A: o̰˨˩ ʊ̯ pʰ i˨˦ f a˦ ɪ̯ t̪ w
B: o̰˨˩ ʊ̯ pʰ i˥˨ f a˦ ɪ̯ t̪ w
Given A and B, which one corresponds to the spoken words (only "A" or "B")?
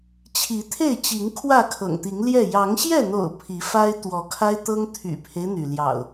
A